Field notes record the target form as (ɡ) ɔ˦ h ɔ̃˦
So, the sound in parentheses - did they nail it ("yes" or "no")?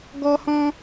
yes